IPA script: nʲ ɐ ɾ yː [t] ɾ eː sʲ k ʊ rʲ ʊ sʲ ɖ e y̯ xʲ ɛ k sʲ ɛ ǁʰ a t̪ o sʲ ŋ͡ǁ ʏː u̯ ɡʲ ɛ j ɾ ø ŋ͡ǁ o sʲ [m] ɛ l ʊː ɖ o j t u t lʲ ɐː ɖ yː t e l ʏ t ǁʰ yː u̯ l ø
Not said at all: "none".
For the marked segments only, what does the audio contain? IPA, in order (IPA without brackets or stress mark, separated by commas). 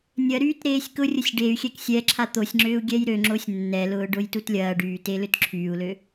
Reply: t, nː